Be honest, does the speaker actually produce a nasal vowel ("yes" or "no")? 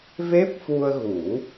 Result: no